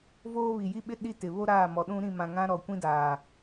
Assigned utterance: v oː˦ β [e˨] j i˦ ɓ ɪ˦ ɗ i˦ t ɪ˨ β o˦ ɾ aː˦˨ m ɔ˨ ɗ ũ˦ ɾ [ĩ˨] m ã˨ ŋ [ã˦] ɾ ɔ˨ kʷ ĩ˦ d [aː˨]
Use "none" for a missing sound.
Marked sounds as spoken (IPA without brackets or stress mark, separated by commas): i˨, ĩ˦˨, ã˦, aː˨